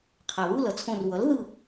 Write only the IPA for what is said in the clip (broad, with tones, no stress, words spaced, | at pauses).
qʰa˩βu˥˨lʌ˩t͡sʰõ˧˩r wʌ˩˥lðɯ˧˩